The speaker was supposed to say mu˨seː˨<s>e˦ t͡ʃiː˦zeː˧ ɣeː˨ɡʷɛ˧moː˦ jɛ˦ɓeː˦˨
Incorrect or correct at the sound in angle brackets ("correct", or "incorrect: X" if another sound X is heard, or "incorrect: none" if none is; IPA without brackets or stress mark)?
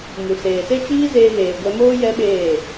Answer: correct